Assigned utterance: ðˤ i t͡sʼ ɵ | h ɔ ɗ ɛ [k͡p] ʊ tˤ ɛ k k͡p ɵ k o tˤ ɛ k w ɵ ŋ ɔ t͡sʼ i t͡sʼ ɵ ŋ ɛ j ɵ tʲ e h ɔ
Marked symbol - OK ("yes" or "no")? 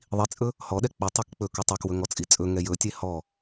yes